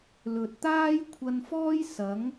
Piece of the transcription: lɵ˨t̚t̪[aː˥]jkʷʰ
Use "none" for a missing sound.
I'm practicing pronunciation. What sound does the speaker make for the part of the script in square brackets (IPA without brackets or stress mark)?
aː˥